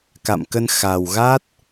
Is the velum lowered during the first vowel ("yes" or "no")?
no